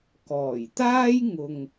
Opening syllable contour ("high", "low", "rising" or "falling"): low